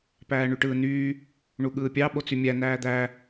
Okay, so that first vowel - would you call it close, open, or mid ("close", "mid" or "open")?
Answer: open